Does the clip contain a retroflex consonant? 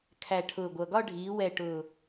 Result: yes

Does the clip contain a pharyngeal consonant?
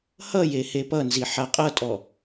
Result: yes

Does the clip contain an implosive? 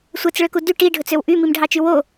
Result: no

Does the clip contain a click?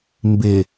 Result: no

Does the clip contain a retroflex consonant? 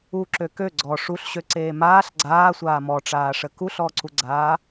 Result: yes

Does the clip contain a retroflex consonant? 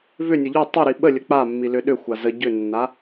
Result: no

